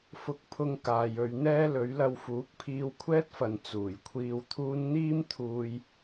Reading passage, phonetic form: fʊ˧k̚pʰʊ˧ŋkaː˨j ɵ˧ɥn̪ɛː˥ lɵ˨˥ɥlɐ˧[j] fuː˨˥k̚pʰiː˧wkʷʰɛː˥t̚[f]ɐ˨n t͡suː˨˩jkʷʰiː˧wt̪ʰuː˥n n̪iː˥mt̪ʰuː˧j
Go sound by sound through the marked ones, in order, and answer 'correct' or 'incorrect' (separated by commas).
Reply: incorrect, correct